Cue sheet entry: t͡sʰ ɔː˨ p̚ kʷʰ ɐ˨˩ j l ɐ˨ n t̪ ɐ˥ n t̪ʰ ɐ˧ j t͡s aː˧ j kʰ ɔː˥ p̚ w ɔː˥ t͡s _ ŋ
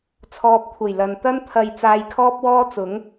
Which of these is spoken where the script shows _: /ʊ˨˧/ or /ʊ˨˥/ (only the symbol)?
ʊ˨˥